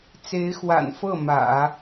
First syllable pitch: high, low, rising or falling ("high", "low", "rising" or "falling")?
rising